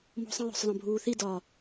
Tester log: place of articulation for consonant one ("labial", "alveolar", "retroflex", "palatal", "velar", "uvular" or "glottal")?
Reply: labial